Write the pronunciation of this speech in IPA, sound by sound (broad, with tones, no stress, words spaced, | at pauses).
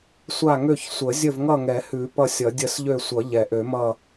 sʷa˦˨ŋø˦˨çsʷə˨˩˦ zʲə˦˨vŋʌ˦˨ŋɛ˨˩˦hʉ˨˩˦ pʌ˦˨sʲʌ˨˩˦dʲə˦˨s ʎø˦˨sʷʌ˨˩˦ ʎɛ˨˩˦ʔø˨˩˦mʌ˦˨